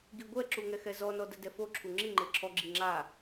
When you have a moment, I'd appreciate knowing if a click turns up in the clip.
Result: yes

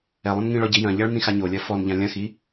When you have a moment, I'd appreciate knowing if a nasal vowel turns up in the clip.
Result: yes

